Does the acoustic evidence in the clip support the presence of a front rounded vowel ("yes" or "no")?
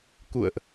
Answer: no